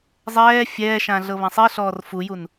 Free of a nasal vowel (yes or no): no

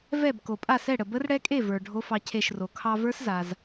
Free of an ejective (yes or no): no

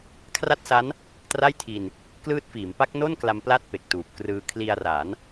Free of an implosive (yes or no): yes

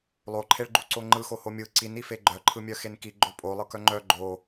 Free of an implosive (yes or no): yes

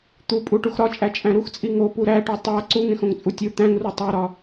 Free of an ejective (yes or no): no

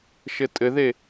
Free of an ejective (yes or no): no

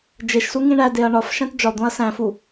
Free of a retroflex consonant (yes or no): no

